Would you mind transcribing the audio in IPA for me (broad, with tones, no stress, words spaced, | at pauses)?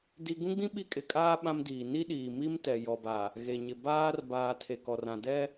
di˦ ɡũ˦ɡ͡bĩ˦ ɓi˦ kʼɪ˨kʼaː˦ ɓã˦mdiː˨ ni˦ɗiː˨mi˦mtɛ˨ jɔ˨ba˨ | ɣe˨ ɲɪ˨ baː˦rbaː˨ tʰe˨kɔ˨rã˨ dɛ˦